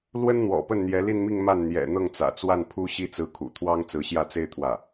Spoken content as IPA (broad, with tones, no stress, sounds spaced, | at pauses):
l w ə˥ n n̪ w ɔ̰˨˩ p ə˥˩ n n̪ j ɛ˧˥ l i˥˧ n m i˥˧ ŋ m a˥˩ n n̪ j ɛ̰˨˩ n̪ ɤ˥˩ ŋ t͡s ä̰˨˩ t͡s w a˥˩ n pʰ u˥ ɕ i˥˧ t͡s ɹ̩˥˩ kʰ ṵ˨˩ t̪ʰ w ɑ˥ ŋ t͡s ɹ̩˧˥ ɕ j ä˥˩ t͡s e˥ ɪ̯ t̪ʰ w ä˥˩